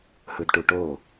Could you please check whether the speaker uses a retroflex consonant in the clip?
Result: yes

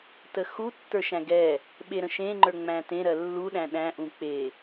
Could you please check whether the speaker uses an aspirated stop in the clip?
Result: no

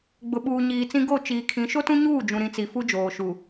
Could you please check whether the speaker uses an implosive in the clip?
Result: yes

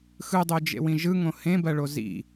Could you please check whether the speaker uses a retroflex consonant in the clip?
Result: yes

